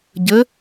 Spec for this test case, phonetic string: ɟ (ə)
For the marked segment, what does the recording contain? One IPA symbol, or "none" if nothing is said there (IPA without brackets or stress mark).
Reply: ə